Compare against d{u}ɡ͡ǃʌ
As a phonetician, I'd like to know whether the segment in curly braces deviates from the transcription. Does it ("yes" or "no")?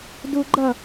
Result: no